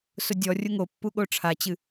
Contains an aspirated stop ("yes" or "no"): yes